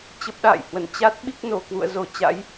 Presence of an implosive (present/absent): present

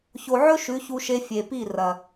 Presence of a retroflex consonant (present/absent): absent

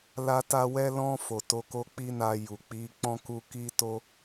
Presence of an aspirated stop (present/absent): absent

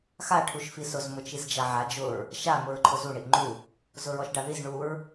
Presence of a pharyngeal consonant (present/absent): present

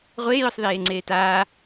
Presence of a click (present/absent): present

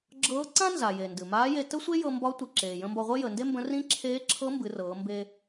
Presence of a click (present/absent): present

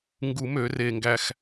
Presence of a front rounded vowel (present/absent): present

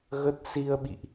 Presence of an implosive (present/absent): present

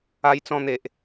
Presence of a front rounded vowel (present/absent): absent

